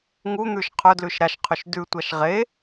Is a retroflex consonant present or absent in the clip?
absent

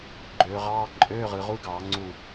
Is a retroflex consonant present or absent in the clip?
absent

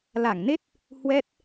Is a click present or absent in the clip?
absent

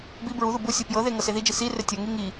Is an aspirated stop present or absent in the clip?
absent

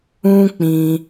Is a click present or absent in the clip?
absent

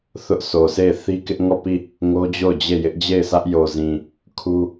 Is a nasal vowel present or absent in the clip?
present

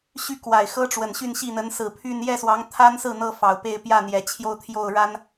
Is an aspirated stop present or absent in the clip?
present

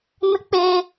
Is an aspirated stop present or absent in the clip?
absent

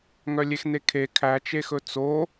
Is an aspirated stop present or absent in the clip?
present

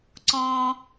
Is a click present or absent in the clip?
present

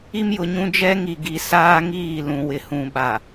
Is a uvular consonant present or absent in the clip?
absent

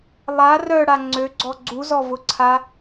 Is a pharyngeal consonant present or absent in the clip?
absent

